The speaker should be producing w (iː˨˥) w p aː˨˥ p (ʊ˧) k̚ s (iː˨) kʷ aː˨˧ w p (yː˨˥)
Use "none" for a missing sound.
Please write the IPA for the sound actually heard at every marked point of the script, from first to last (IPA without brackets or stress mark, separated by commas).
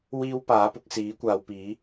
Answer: iː˥, ʊ˨˥, iː˨˥, iː˨˥